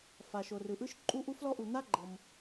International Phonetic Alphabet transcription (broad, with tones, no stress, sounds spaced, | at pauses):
f a˩ ʃ o˩ r ɯ˩ ʔ ɯ˥ ʃ ǃʼ u˥ ʔ u˥ f l ɔ˥ ʔ u˩ n̪ a˥ ɡ͡ǃ ɤ˩ m